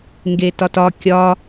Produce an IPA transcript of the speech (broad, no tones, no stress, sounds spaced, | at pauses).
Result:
ŋ ɡ e t ɒ t ɒ kʲ ɒ